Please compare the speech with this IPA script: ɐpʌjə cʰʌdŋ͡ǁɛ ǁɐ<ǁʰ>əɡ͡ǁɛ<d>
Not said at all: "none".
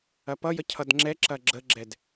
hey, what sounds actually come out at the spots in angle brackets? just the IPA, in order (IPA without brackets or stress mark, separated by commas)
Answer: ɡ͡ǁ, d